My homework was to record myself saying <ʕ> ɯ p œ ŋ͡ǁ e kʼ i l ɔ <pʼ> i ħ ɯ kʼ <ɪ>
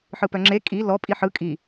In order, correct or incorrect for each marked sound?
incorrect, correct, incorrect

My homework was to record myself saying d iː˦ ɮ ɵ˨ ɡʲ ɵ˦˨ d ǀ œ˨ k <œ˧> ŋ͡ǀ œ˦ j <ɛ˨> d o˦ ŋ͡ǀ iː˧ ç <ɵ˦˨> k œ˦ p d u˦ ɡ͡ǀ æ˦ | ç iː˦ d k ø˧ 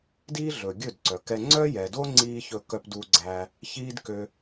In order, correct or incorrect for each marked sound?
incorrect, correct, incorrect

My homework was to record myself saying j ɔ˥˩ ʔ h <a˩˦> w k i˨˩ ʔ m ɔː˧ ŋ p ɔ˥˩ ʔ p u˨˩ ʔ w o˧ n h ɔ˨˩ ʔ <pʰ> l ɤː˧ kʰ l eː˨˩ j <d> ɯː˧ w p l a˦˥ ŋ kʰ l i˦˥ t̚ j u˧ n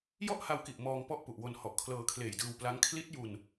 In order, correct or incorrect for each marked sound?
incorrect, incorrect, correct

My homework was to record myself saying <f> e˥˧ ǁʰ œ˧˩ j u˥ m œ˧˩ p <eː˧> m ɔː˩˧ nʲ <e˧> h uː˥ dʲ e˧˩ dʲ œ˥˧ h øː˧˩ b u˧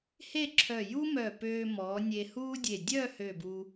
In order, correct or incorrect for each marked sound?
incorrect, incorrect, correct

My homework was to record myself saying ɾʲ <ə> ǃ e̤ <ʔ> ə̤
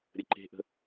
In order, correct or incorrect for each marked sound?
correct, correct

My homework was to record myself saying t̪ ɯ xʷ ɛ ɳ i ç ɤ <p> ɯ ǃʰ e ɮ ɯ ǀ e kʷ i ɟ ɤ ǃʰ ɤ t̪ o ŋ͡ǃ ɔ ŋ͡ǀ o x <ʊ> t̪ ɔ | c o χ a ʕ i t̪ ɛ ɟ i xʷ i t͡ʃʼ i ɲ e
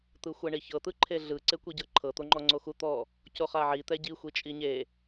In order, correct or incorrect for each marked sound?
incorrect, incorrect

